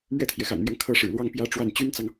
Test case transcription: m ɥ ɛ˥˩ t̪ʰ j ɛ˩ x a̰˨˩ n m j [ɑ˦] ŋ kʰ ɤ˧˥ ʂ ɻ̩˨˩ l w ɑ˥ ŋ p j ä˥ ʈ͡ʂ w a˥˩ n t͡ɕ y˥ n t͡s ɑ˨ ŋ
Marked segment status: correct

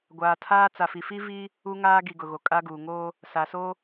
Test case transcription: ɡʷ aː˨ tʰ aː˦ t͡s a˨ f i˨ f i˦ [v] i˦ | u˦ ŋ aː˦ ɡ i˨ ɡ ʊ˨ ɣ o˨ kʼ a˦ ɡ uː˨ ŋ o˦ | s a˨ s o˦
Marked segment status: correct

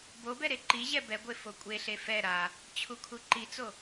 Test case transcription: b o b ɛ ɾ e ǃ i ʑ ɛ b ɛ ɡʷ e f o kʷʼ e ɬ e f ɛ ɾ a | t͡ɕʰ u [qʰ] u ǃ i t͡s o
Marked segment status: incorrect: kʰ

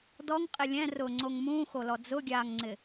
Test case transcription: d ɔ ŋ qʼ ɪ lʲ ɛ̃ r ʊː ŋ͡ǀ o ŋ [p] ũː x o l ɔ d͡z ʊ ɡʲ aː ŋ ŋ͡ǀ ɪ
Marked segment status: incorrect: m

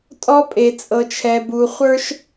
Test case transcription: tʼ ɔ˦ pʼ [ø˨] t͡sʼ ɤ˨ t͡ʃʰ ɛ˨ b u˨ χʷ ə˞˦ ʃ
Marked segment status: incorrect: e˨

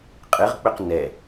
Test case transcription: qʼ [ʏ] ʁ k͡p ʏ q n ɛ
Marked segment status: incorrect: ɨ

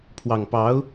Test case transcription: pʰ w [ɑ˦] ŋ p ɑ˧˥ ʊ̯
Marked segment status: incorrect: ɑ˨˩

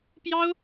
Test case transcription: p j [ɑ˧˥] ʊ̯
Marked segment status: incorrect: ɑ˥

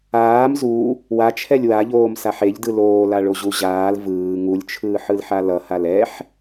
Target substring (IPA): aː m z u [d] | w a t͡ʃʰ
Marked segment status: incorrect: none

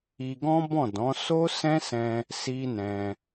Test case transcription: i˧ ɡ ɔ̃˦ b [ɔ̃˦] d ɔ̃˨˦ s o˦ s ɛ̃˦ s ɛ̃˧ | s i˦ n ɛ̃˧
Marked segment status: incorrect: ɔ̃˦˨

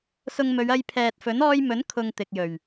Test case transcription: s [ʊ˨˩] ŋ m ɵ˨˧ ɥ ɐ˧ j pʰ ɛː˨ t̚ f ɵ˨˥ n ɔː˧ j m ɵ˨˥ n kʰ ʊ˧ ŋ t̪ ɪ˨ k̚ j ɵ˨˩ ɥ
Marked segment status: incorrect: ʊ˧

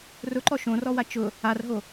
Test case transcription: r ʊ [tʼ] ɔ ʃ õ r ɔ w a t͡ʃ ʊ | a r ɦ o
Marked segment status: incorrect: ǃ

